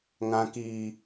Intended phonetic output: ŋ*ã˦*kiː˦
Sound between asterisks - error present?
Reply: no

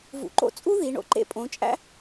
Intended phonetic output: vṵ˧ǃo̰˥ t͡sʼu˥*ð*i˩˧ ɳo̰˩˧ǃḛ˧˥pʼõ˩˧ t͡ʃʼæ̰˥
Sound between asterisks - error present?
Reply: no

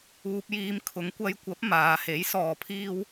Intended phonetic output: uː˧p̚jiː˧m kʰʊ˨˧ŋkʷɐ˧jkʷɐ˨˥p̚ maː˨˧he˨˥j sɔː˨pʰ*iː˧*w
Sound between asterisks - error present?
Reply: no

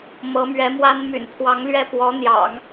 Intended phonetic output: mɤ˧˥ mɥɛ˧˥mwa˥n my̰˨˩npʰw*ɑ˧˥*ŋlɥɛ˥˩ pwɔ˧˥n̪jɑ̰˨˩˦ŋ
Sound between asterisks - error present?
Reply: no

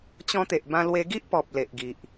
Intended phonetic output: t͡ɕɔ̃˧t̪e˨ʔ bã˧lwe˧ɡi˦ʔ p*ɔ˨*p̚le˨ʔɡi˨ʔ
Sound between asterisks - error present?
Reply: no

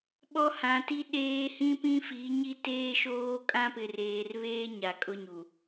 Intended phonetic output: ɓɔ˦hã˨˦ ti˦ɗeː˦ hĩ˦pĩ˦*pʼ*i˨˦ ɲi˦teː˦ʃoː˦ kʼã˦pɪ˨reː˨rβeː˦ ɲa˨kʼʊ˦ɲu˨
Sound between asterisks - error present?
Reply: yes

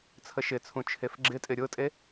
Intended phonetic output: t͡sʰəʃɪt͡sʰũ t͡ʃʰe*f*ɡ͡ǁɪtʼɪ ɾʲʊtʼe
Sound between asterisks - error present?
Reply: no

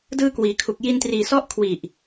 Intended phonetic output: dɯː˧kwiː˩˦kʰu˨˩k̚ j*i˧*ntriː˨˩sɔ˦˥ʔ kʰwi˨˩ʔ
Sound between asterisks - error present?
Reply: no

